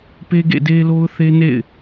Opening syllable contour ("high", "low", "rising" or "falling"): high